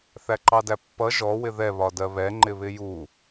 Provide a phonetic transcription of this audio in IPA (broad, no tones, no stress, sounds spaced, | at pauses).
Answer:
θ æ ǃ ɑ d æ pː ʌ ʒ ɔ w ɪ ð ɛ β ɒ d ɜ β ɛ ŋ͡ǃ ɪ β ɪ j u